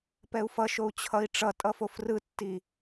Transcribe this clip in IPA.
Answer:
p ɛ u̯ f ʌ ʃ o u̯ t͡ɕʰ ʌ i̯ ʈ͡ʂ ʌ tʼ ʌ f o f r ɯ tː i

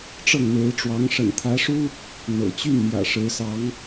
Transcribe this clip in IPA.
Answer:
ʈ͡ʂ ɤ˥˩ ŋ n̪ e˧˥ ɪ̯ ʈ͡ʂ w ɑ˧˥ ŋ ʂ ə̰˨˩ n t̪ʰ ä˧˥ ʂ u˥ | n̪ ɤ̰˨˩ t͡ɕ y˥˩ n m j ä̰˨˩ ʂ ɻ̩˧˥ s ɑ˧˥ ŋ

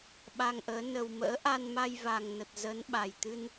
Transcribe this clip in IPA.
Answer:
ɓ a˧ ŋ ʔ əː˨˦ n ə˨˩ w m ə̰ː˧˥ ʔ a˧ n m a˧ j v a˨˩ ŋ n ə˨˩ t̚ z ə˨˦ n ɓ a˨˩ j t̪ ɨ˧ n

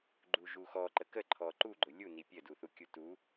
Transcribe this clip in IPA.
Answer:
ɡ͡ǃ u ʒ u x ɔ ǃ ə k ə ǃʰ ɔ ǃ u ɡ͡ǃ ʊ lʲ u n i pʲ ə d u θ u kʲ u t u

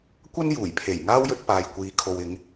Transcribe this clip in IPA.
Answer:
kʷ ɐ˥ n j uː˨˩ j pʰ e˨˩ j ŋ aː˥ w j ɵ˧ t̚ p aː˨ j kʷ iː˨ kʰ o˨ w ɪ˨˧ ŋ

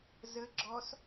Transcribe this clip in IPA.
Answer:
z ə ɡ͡ǁ ɔ s

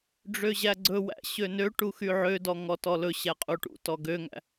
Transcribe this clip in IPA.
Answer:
ɖ͡ʐ ø ʑ æ ɡ͡ǀ ɵ w æ̰ ɕ ø n ø ʈ u x y ʕ ø d ɔ ŋ ɔ t ɔ l ɵ ɕ æ qʼ u ʈ ṵ t ɔ ɡ ø ŋ æ̰

